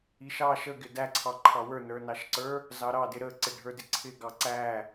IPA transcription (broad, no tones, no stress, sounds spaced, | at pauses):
i ʃ ɑ ʃ ə ɡ ɪ d æ ǀʰ ɑ ǃʰ ɑ w ə˞ n ə˞ n ɑ ʃ ǀ ə˞ | z ɑ ɾ ɑ d ɪ ɾ ə ǀ ɪ ɖʱ ə˞ d ɪ ǀʰ ɪ ɡ ɑ ǀ æ